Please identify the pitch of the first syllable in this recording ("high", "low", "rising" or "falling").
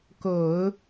low